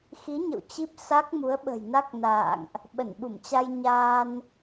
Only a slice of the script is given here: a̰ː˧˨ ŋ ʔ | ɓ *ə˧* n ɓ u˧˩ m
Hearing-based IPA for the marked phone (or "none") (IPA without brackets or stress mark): ə˧˩